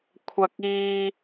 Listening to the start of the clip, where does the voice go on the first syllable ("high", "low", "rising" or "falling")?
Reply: high